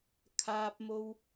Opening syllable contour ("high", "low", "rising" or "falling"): high